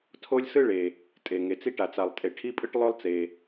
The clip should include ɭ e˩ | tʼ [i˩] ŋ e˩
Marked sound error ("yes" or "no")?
yes